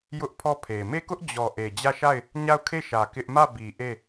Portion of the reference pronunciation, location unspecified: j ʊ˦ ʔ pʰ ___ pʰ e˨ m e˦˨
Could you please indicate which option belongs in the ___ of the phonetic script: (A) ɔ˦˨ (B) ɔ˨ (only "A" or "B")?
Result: A